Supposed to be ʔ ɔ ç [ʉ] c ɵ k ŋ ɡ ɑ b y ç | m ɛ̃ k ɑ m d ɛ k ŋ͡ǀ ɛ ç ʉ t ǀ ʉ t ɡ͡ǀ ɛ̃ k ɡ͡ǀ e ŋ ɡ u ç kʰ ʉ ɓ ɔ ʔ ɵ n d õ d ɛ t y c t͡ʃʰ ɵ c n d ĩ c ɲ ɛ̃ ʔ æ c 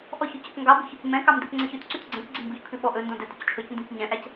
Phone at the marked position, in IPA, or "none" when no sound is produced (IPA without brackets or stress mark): ʉ